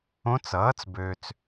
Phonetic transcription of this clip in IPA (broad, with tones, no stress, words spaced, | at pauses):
õ˧˥t͡sʌː˩˥t͡sbøː˨t͡s